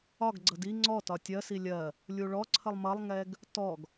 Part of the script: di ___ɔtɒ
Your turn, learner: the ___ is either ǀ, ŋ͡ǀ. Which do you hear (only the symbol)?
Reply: ŋ͡ǀ